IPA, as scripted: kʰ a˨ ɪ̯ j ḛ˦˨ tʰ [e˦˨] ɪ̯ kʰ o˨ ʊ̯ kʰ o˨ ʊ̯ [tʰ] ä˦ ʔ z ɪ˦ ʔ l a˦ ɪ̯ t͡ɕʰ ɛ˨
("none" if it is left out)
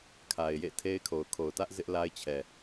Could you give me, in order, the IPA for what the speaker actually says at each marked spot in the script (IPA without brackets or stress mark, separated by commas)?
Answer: e˦, t